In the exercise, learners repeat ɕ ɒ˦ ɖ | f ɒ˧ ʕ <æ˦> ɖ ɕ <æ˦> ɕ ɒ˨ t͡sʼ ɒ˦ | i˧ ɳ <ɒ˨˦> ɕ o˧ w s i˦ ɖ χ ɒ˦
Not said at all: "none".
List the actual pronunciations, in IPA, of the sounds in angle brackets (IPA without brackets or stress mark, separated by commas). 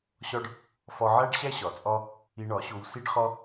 æ˦, æ˦, ɒ˨˦